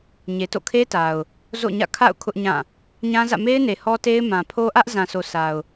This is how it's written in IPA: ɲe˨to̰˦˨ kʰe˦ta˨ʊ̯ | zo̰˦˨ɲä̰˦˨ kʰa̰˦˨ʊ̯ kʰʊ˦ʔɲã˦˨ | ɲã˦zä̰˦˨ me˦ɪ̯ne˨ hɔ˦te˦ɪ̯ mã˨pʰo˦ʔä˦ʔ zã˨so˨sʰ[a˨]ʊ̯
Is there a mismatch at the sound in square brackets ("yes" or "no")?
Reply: no